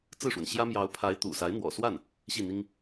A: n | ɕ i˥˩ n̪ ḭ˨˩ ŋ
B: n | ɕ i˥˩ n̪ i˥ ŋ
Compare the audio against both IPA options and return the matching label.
B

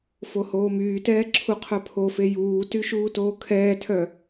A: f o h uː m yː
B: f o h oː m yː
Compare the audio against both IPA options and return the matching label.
B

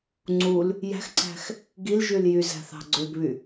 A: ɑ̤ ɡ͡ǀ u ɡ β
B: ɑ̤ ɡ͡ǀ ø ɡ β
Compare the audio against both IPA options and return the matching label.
B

